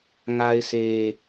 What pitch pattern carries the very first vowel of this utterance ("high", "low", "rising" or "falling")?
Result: high